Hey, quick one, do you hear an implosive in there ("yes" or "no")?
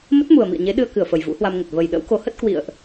yes